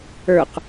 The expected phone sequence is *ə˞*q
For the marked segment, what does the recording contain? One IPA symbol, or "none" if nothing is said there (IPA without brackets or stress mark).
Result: ə˞